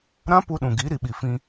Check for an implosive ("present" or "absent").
present